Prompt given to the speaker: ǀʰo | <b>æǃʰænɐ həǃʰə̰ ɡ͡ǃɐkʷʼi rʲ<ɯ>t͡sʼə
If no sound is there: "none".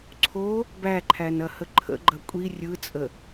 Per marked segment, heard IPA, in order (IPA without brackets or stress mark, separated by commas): b, ɯ